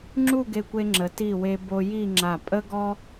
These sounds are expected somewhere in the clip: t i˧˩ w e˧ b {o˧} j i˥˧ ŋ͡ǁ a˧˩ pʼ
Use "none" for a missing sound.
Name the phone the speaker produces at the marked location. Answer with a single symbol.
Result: o˧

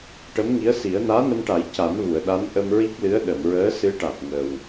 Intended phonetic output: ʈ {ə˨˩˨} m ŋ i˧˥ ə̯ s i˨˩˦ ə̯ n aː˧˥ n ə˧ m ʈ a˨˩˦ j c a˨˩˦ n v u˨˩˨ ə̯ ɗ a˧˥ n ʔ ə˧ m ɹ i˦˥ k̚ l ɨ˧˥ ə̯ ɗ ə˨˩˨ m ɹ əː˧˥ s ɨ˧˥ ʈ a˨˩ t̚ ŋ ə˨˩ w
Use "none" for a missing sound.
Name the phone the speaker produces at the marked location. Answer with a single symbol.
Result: ə˧˥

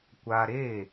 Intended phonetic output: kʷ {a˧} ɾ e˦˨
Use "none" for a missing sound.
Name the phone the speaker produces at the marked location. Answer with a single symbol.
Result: a˧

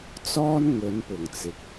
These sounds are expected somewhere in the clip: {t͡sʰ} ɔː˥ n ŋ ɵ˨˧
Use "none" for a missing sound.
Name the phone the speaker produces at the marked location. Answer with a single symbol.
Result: t͡s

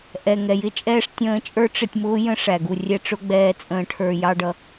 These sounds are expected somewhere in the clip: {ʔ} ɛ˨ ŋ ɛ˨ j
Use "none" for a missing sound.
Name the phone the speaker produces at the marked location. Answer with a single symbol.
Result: ʔ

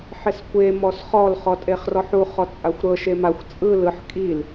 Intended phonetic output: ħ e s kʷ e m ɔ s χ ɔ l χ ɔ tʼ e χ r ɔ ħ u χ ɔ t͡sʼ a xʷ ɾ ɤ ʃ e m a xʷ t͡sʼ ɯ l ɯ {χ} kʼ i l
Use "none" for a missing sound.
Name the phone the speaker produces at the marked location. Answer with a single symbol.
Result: ħ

